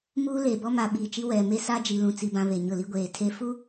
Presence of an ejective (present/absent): absent